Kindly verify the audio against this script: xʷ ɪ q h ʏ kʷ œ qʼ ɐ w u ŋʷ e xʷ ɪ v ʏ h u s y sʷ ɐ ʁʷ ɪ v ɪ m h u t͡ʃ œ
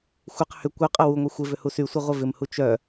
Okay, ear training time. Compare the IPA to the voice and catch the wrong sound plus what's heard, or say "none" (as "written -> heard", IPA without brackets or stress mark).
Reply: none